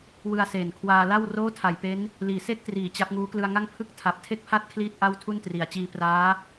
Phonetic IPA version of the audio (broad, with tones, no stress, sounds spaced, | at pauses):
w ɯ˧ a̯ s eː˨˩ n kʰ w aː˧ l a˥˩ w r oː˥˩ tʰ a˨˩ j p e˦˥ n | l iː˨˩ s e˥˩ k̚ t r iː˩˦ t͡ɕ a˦˥ p̚ ŋ uː˦˥ k l ɯ˧ a̯ ŋ a˥˩ ŋ pʰ ɯ˥˩ k̚ tʰ a˨˩ p̚ tʰ e˥˩ k̚ pʰ a˥˩ t̚ kʰ l iː˥˩ t̚ ʔ a˥˩ w tʰ u˥˩ n t r i˩˦ a̯ t͡ɕ iː˧ p r aː˦˥